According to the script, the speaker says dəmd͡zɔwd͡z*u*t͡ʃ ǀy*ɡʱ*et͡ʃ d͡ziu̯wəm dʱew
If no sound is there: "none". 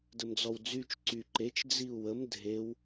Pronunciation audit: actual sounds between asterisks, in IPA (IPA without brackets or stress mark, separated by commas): y, ǃ